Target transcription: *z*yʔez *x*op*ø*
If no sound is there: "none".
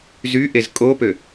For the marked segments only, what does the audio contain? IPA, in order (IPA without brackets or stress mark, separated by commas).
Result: z, kʼ, ø